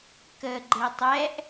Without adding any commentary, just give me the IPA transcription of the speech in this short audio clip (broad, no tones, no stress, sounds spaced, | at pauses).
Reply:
k ə ɡ͡ǃ e tˤ ɛ ʔ